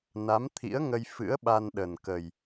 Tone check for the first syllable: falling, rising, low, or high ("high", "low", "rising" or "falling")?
rising